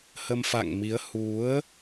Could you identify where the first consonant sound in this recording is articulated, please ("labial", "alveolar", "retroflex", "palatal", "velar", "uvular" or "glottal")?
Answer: glottal